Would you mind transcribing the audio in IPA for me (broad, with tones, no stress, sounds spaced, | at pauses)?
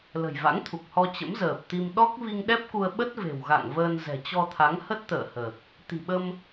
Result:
l ə̤˨˩ j v a̰˧˥ ŋ t̪ʰ u˨˩ k̚ h ɔ˧ t͡ɕ ə̰˧˥ m z əː˨˩ p̚ t̪ i˧ m ɗ ɔ˦˥ k̚ v i˧ ŋ ɗ ɛ˦˥ p̚ k u˧ ə̯ ɓ ə˦˥ t̚ v e̤˨˩ w ɣ a̰˧˨ ŋ v əː˧ n z ɛ̤˨˩ t͡ɕ ɔ˧ t̪ʰ a˨˦ ŋ h ə˦˥ t̚ t̪ ə̰ː˧˨ h əː˨˩ k̚ | t̪ i̤˨˩ ɓ ə˧ m